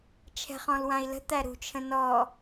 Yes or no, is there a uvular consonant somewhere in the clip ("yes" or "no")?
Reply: yes